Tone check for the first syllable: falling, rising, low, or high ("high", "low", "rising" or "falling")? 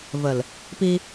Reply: low